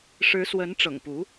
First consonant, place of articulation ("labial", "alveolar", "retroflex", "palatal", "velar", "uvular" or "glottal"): retroflex